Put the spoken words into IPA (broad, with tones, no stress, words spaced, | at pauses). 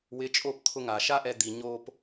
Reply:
wɪ˨˦t͡ʃʼo˦˨p t̪ʰʊ˧ŋa˨ʃa˦ʔɛ˧ d̪i˨ ɲo˧p